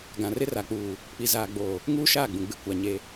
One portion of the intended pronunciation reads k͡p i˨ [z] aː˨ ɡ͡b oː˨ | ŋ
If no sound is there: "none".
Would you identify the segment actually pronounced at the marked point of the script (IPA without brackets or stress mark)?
z